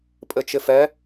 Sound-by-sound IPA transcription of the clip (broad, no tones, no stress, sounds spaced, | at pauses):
pʼ ɘ t͡ʃ ɪ f ɛ